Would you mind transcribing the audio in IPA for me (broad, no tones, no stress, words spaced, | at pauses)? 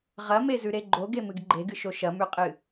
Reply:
ʁɐmezʉɾe ɡ͡ǃoɡemɨɡ ɡ͡ǃeɡɨʃo ʃɐmʉqʼɨ